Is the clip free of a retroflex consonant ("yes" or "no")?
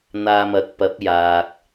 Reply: yes